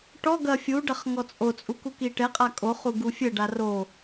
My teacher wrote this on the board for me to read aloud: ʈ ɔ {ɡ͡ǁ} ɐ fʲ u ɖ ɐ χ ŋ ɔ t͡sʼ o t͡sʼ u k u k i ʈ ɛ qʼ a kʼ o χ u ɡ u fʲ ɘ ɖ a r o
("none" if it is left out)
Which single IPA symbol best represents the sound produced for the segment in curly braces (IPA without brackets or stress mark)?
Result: ɡ